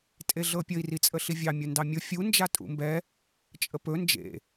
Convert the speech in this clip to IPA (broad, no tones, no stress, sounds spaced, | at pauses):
tʼ e ɮ ɤ pʲ ə i̯ r i t͡sʼ ə ɬ i vʲ ɑ mʲ ʊ n d ɑ mʲ ʊ fʲ u n d͡ʒ a tʼ ṵ m b ɛ | t͡ʃʼ ə p ɵ n d͡ʒ ḛ